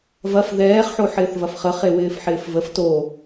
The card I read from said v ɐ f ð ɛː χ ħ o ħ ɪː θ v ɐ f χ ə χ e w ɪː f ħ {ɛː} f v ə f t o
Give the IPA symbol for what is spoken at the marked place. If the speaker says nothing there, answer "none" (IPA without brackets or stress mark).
ɪː